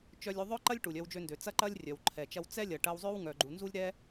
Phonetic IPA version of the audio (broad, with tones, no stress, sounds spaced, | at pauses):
t͡ʃ œ˧ lʲ u˧ ðˤ œ˥ ǃ ɐ˥ lʲ ʈ u˩ lʲ œ˧ w d͡ʒ ø˧ n d ø˩ t͡s ɐ˥ ǃ ɐ˥ lʲ rʲ œ˩ w ǃʰ ɛ˩ t͡ʃ ɐ˧ w t͡s ɛ˥ lʲ ɐ˩ ʈ ɐ˧ w zˤ ø˥ w ŋ œ˩ ɡ͡ǃ u˩ n z u˥ lʲ ɾ ɛ˥